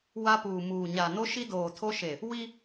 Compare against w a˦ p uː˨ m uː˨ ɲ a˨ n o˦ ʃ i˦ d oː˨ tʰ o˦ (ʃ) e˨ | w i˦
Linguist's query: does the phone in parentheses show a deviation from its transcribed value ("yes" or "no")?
no